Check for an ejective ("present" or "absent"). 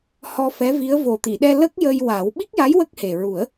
absent